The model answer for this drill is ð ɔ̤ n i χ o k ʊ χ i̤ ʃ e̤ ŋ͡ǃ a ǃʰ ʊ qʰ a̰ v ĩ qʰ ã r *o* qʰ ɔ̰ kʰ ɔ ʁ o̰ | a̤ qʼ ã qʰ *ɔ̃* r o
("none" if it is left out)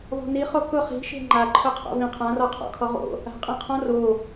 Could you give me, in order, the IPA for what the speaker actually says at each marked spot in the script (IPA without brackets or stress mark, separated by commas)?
ɔ, ɔ̃